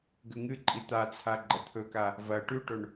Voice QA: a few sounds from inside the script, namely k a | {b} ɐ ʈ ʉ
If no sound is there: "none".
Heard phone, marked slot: v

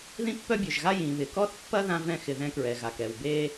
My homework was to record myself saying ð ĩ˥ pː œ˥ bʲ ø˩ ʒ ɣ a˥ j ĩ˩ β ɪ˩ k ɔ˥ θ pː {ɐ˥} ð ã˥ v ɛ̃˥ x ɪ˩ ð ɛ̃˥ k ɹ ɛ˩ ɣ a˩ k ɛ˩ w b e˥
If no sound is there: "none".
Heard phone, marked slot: ɐ˥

